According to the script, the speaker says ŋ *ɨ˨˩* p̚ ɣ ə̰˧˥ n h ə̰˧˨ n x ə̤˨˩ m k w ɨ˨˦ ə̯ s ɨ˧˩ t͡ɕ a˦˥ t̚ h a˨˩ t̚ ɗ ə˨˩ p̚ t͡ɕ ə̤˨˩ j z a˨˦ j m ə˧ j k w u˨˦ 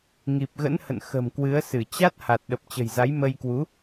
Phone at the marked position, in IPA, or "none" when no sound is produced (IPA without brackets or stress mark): i˨˩